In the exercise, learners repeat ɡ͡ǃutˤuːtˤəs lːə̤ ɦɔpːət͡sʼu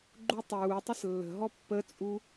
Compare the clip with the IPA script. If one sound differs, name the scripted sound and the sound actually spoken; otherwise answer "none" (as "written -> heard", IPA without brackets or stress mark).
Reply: none